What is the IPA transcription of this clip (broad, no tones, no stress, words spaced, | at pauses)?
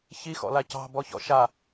çixɔ̰la cɑ̤bɔçɔ̰ ʃa